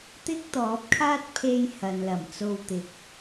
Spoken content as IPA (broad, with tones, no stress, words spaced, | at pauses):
t̪ɪ˥k̚t̪ɔː˨˥p̚kʰaː˥t̚pʰe˧j hɐ˨nlɐ˨˩mt͡so˧wt̪ɪ˨k̚